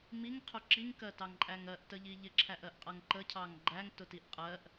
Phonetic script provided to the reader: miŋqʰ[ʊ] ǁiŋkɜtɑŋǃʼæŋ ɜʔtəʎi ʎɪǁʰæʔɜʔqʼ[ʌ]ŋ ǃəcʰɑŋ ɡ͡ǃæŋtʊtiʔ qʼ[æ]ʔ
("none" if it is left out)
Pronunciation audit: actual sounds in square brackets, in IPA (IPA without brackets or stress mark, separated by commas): ʊ, ʌ, ɜ